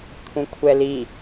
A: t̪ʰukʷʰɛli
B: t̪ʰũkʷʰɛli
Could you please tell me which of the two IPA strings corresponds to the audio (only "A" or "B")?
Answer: B